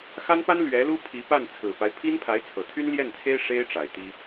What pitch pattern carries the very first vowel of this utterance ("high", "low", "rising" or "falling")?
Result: high